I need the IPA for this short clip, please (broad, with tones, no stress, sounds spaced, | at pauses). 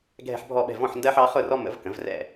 ɡʱ ɛ̤˦ ħ bʱ ɔ˥˩ ɓ ɛ̤˥˩ v ɔ̃˥˩ ħ n d ɜ˦ ħ ɑ˩˥ χ ʊ˥˩ r ɔ˦ m ə̰˩˥ v k ə̃˩˥ v r ɛ̰˥˩